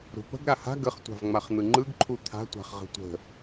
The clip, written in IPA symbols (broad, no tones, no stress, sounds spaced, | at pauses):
ɾ ṳ p ə̤ ɡ ɾ a h a̤ ɡ ə χ tʷ a̤ v ŋ͡m a χ n̪ ɯ ŋ͡ǃ ɯ ɡ ǃʰ u t̪ʰ a̤ tʷ a̤ χ ʁ ə̤ tʷ ə̤